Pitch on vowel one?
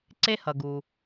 high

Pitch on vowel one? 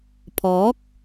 rising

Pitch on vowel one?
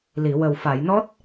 low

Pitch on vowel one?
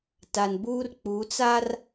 low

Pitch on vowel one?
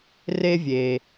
high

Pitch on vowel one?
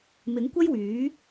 rising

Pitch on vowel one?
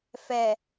low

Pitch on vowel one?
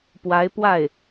rising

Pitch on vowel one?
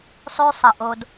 high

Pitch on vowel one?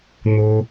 high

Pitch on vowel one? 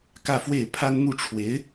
falling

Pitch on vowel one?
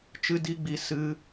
high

